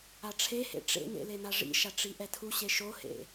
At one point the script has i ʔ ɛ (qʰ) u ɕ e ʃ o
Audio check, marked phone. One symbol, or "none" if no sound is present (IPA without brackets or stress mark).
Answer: tʰ